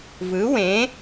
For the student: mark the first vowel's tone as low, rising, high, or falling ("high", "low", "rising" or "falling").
rising